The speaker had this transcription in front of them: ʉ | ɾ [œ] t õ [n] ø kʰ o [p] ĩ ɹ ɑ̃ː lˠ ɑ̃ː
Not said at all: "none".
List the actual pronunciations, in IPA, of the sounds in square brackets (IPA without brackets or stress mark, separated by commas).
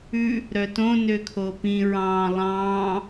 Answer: œ, n, p